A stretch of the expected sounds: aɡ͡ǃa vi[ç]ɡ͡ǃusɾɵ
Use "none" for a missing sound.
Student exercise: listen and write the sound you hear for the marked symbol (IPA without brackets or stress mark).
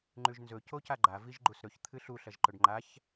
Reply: ʒ